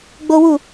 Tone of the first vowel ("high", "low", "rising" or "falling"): high